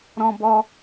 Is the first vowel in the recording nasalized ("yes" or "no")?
yes